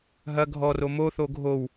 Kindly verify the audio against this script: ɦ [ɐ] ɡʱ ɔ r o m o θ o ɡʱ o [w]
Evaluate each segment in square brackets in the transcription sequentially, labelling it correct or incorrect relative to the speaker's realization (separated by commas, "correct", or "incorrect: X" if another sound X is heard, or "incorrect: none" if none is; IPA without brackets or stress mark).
correct, correct